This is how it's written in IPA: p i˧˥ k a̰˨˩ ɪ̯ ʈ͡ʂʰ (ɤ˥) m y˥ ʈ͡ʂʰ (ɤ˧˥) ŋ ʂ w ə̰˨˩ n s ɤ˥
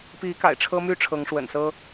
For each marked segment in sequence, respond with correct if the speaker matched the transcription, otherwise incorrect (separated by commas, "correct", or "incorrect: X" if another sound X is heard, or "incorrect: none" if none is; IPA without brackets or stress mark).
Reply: correct, correct